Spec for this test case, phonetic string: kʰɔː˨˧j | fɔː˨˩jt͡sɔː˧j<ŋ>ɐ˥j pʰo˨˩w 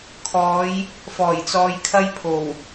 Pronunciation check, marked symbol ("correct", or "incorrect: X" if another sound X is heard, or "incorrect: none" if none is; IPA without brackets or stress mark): incorrect: kʰ